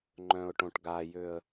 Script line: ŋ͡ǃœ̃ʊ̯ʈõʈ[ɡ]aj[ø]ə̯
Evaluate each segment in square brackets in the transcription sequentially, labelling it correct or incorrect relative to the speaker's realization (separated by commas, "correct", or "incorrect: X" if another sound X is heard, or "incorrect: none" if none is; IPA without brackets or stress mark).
correct, correct